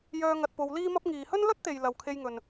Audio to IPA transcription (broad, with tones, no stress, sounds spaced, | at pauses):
j œː˧ ŋ ɐ˧ t̚ p o˧ w l iː˥ m ɐ˥ p̚ ŋ iː˨ h ɵ˥ n l ɵ˥ t̚ t̪ e˨ j l ɐ˨ w kʰ e˧ j ŋ ɵ˨ n